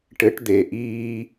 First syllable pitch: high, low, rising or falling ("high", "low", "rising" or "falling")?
rising